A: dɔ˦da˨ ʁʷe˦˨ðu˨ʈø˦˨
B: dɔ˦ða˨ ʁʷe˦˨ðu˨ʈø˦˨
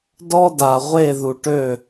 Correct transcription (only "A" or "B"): A